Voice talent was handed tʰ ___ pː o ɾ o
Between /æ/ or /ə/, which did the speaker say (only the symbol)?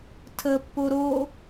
ə